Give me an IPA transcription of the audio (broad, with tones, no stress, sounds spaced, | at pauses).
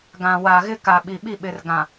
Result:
ɡ ã˨ w a˨ ɣ ɪ˦ k a˨ ɓ i˨ ɓ i˦˨ ɓ ɪ˨ r ɡ ã˨